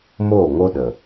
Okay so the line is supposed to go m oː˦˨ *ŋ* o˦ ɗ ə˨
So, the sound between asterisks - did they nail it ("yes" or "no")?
yes